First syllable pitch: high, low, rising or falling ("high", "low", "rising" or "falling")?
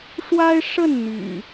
high